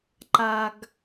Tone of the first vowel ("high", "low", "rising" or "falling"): low